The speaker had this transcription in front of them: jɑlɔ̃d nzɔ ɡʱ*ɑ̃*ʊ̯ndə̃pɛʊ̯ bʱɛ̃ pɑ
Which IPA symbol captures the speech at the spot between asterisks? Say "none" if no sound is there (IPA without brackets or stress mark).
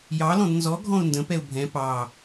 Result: ɔ̃